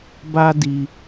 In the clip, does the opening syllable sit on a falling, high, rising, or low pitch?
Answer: high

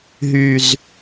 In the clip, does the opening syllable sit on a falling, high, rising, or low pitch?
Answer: low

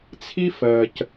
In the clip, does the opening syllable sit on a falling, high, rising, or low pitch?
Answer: high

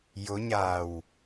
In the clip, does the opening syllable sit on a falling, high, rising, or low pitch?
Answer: rising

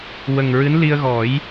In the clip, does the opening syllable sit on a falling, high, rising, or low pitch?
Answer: low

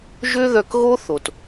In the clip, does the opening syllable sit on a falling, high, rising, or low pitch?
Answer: high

